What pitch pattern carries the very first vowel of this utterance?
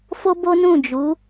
high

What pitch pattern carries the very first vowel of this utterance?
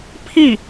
falling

